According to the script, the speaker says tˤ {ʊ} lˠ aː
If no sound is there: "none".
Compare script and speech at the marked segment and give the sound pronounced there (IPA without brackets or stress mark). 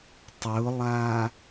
ʊ